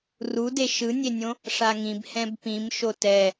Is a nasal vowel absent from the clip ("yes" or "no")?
no